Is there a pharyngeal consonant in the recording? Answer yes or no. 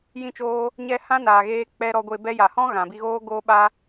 no